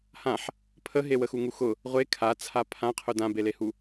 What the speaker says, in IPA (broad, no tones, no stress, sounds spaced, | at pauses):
h ã ħ | pʰ ə ɦ e w ə x u ŋ u x ʊ | ʁʷ e kʰ a t͡sʰ a pʰ ã qʰ ʊ d ã b e l e h u